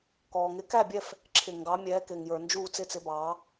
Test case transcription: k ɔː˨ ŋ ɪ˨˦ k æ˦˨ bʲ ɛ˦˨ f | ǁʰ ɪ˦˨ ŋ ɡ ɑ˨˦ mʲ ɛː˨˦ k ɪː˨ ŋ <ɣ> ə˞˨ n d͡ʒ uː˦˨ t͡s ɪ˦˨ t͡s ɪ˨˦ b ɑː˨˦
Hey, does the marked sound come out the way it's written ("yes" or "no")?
no